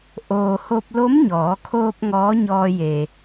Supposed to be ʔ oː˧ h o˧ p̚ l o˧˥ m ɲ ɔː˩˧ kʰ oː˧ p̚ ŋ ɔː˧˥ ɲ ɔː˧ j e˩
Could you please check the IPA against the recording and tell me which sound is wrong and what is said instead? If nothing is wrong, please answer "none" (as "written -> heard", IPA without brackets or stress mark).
none